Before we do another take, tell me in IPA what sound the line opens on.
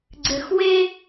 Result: ɡ͡ǀ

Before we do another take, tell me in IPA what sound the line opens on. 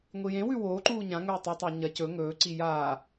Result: ŋʷ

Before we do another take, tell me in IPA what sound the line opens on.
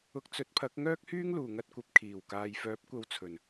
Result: ʊ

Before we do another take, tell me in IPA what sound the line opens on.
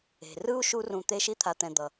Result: e̤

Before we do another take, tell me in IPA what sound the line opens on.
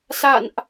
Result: s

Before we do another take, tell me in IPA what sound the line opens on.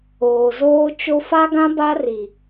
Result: oː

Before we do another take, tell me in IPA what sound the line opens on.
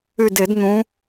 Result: y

